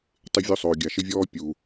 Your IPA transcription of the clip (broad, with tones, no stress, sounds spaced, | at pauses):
tˤ ɪ˦ vʲ o˦ sˤ oː˨ ɡʲ a˨ ʃ ɪ˦ vʲ ɔː˦ pʲ u˨